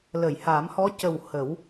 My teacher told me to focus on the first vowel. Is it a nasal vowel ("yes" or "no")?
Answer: no